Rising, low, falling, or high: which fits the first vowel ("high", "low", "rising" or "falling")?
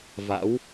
rising